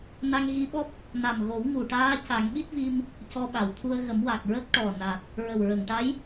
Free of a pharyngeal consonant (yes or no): yes